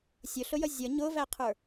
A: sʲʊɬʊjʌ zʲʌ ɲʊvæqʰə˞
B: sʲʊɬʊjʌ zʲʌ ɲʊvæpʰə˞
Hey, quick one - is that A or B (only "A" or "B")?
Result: A